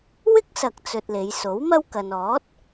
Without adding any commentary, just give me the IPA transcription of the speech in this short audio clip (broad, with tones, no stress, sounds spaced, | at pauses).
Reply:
w ɪ˥ k̚ s ɐ˨ k̚ t͡s ɵ˧ t̚ l e˨˧ j s o˨˥ w m ɐ˥ w k ɐ˨ n ɔː˨˥ t̚